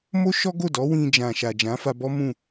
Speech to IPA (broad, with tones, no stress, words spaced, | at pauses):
mo˦ʃɔ˦ɡo˦˨dɔ˨˦ wĩ˧d͡ʒã˨ʃa˨ d͡ʒã˨˦fa˧bɔ˦ mũ˦˨